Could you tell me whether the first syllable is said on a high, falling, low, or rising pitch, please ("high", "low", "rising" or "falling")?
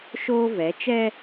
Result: high